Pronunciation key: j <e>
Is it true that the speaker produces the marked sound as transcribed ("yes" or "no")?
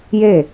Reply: yes